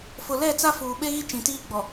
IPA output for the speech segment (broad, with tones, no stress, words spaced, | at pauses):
fʊ˨lɛ˦˨t͡sa˦ fuː˨ɓe˦ɣi˦ t͡ʃĩ˨tiː˦ɡ͡bɔ˨